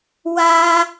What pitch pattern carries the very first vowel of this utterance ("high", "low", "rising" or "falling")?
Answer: high